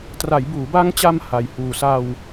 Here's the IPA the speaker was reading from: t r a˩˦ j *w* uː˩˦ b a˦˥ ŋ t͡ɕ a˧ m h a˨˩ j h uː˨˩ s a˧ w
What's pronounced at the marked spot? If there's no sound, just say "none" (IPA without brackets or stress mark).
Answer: b